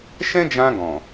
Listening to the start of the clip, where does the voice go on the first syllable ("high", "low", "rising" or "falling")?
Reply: high